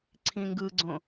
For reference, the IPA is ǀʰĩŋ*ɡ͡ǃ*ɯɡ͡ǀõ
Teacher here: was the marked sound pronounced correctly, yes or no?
no